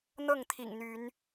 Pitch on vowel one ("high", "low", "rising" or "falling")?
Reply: falling